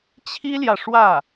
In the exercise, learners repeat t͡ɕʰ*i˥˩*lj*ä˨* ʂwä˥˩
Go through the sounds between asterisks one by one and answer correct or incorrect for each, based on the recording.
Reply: incorrect: i˥, correct

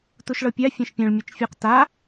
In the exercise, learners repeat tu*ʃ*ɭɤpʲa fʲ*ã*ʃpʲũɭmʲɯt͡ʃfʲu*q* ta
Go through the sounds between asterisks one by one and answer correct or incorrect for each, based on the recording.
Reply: correct, correct, correct

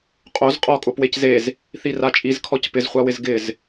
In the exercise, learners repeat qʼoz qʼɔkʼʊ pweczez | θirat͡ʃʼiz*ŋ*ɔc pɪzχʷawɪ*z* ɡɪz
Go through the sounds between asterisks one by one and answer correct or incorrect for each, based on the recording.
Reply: incorrect: kʰ, correct

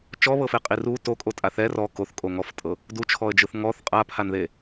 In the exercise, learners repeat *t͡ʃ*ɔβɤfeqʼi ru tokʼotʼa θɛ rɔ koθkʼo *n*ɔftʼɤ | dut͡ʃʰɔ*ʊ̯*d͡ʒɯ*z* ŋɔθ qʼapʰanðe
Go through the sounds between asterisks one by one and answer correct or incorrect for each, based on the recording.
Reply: correct, incorrect: ŋ, incorrect: ə̯, incorrect: θ

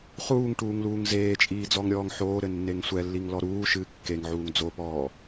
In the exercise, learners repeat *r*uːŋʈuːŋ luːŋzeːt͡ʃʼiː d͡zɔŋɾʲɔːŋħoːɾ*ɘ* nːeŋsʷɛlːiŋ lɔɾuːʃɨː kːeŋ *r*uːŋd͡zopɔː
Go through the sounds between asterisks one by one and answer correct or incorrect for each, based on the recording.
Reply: incorrect: χ, correct, incorrect: ʕ

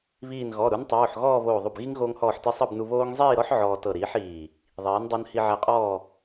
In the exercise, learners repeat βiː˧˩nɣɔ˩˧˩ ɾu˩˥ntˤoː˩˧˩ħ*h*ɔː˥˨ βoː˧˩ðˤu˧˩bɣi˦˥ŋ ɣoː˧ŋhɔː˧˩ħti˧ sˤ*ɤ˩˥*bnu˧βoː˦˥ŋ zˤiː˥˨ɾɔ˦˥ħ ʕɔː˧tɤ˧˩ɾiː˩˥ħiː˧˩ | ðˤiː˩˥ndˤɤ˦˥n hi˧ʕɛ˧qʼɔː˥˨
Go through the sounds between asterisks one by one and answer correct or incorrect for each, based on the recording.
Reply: incorrect: ɣ, incorrect: ɤ˥˨

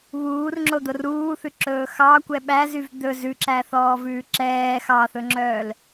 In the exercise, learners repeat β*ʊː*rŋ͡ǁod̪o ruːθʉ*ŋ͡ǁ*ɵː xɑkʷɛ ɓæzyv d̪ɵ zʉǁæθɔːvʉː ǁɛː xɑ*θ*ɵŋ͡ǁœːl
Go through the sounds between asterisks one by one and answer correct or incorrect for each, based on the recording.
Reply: incorrect: uː, incorrect: ǁ, correct

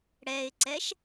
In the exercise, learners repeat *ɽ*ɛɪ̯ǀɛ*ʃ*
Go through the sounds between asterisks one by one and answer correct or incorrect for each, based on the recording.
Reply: correct, correct

